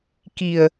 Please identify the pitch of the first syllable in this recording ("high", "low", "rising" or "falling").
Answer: low